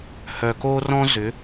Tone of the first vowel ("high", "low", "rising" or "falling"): low